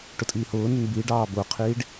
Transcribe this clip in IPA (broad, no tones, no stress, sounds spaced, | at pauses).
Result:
ʈ ʊ tʼ i h ʊː n ʊ n b i ɖ ɑː b ʊː qʰ iː ɖ